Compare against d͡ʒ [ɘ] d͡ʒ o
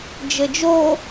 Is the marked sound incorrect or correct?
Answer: correct